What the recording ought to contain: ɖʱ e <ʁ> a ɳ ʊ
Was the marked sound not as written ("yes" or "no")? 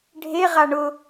no